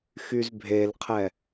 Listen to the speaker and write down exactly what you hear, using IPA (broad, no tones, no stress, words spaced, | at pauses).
xyzbʱelqʰɛ